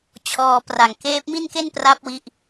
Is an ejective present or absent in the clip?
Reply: absent